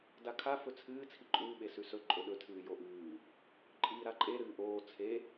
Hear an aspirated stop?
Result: yes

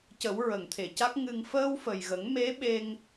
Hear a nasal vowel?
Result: no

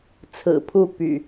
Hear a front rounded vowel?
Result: yes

